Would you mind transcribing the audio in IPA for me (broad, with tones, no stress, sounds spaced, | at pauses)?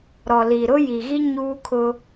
ɾ ɔ˨ l i˨ ɾ ʊ˦ j i˨ ɣ i˦ ɲ uː˦ kʰ ʊ˦